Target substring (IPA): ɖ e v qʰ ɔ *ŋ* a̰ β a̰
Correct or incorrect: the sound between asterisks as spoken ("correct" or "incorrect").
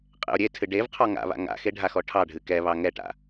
correct